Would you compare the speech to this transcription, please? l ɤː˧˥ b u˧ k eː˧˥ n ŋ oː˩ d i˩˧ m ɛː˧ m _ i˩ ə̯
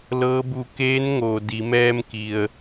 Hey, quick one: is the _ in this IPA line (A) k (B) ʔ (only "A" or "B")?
A